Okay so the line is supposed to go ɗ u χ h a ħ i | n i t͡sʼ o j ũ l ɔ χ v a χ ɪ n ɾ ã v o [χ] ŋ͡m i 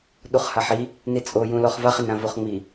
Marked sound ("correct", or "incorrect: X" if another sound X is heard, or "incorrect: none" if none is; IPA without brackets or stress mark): correct